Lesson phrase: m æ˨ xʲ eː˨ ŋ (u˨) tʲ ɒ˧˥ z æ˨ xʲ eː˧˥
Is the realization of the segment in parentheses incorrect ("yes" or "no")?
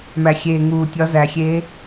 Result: yes